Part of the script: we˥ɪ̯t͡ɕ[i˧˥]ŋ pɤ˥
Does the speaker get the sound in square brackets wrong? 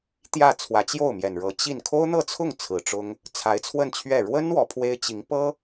no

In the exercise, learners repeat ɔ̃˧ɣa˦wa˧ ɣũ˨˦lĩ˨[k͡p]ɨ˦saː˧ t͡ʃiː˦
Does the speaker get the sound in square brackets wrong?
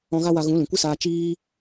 yes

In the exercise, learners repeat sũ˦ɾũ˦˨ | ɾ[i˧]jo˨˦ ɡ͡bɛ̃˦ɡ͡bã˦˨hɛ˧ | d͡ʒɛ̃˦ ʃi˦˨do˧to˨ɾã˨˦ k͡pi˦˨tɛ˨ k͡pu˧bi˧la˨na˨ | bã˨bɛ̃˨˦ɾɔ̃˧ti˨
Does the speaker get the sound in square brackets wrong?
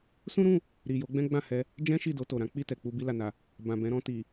yes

